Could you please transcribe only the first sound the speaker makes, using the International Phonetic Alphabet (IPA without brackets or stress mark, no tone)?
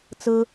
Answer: t͡s